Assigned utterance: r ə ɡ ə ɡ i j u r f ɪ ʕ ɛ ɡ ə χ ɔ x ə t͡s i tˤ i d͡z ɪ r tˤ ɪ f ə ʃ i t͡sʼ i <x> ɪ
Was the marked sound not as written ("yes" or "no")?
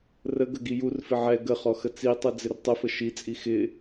no